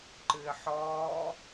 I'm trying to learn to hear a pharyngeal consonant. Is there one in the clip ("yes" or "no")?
yes